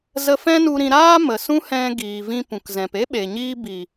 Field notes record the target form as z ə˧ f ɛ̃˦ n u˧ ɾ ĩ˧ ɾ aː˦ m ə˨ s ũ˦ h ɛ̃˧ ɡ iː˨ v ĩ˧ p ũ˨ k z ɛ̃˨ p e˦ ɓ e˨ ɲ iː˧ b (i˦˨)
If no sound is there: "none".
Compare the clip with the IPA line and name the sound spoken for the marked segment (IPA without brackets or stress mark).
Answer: i˨